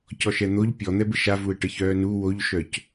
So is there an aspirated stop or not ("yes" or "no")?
no